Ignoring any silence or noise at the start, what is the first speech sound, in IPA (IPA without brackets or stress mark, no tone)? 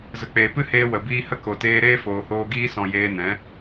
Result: z